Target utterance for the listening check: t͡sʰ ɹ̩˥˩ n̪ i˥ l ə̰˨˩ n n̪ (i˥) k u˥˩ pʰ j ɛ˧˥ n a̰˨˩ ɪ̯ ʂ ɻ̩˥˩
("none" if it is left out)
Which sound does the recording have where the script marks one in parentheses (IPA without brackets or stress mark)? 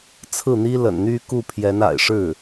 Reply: y˥